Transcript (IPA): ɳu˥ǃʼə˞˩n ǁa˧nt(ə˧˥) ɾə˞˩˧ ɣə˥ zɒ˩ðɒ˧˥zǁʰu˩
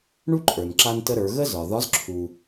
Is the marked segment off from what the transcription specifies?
yes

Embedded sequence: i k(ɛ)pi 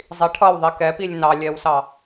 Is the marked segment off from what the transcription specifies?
no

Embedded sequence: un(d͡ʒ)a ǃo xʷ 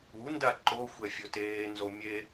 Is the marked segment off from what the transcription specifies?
yes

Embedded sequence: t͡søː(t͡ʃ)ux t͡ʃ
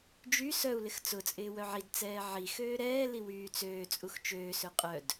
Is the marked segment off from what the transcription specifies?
yes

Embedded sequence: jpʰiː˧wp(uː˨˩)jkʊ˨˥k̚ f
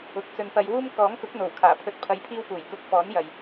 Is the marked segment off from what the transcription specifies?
no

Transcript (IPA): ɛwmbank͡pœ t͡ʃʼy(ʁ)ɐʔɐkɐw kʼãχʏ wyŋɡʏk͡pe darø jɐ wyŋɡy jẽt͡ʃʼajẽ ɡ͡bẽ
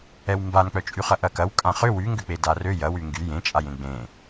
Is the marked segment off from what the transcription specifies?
yes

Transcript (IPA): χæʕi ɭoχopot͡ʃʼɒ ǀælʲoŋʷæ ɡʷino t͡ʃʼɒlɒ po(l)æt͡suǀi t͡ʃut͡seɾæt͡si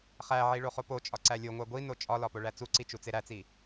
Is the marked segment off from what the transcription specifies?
yes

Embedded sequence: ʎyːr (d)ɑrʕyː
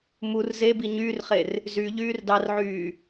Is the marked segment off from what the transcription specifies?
no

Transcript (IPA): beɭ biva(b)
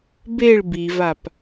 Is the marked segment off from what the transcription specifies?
yes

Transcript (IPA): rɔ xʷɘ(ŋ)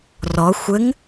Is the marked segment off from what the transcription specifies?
no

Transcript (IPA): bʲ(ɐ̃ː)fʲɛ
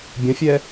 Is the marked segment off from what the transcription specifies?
yes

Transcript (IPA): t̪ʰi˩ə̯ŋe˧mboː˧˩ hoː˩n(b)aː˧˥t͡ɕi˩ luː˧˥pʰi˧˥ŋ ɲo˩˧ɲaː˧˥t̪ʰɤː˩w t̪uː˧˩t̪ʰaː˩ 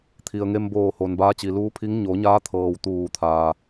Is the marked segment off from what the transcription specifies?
no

